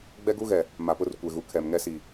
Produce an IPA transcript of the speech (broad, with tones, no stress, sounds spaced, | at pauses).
ɡ͡b ɛ˦ ɡ u˦ ɣ ɛ˨ | m a˨ p ʊ˦ r kʷ e˨ ɣ u˨ kʰ ɛ˨ m ŋ ɛ˦ s i˨